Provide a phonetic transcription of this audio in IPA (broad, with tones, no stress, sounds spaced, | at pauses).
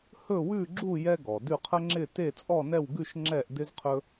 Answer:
h ɵ˥˧ w ʉ˥˧ ɡ͡ǁ u˥˧ j ɛ˥ ɡ ɔ˩ d ʉ˥˧ qʰ ə˥ ŋ͡ǁ ɪ˥˧ t e˥˧ t͡sʼ ɔ˥˧ n ɛ˥˧ w ɡ ʉ˥˧ ʃ ŋ͡ǁ ɛ˥˧ ʔ d ɪ˥ z qʰ ɵ˥